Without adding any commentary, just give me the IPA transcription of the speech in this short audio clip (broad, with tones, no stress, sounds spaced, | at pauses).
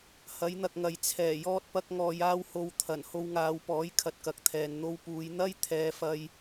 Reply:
h ɐ˨˥ j n̪ ɐ˨ k̚ ŋ ɐ˨ j t͡sʰ ɛː˨˩ j ɔː˥ t̚ p ɐ˥ k̚ ŋ ɔː˧ j aː˥ w h o˨ w t̪ʰ ɐ˨˩ n h o˧ w ŋ aː˨˧ w p ɔː˨˥ j kʰ ɐ˨ t̚ k ɐ˨ k̚ t̪ʰ ɛː˨ n n̪ o˧ w p uː˨˧ j n̪ ɐ˥ j t̪ʰ ɛː˨˧ f ɐ˧ j